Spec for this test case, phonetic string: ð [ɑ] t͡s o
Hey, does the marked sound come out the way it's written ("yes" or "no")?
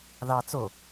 yes